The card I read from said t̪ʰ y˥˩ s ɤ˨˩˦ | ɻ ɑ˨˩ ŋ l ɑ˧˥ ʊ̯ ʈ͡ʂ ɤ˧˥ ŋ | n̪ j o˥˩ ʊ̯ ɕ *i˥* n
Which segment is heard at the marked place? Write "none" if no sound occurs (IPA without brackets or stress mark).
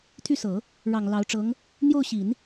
i˨˩˦